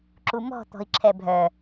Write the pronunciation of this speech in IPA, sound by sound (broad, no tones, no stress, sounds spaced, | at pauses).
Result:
ǁ u m ɔ̤ t̪ ɔ̤ i̯ ǁʰ ɛ bʱ œ